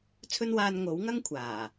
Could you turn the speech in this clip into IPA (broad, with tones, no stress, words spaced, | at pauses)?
t͡sʰɵ˧nwaː˨n ŋo˨˥wŋɐ˥ŋ kʷʰaː˨˩